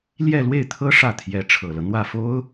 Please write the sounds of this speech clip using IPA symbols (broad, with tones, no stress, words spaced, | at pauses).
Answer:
ljɛ˥˧lwe˥˩ɪ̯t̪ʰɤ˥ ʂä˥˩t̪ʰjɛ˧˥ ʈ͡ʂʰɤ˨˩lɤ˦ n̪wä˥˩fo˥ʊ̯